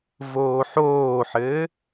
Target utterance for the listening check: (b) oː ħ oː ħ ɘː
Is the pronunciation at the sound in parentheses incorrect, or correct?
incorrect